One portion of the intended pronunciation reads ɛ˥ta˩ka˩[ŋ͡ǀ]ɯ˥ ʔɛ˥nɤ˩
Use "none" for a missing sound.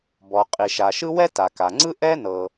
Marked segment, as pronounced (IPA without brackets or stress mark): ŋ͡ǀ